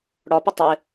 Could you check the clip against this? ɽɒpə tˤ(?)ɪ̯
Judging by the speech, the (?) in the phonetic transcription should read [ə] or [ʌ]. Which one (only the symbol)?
ə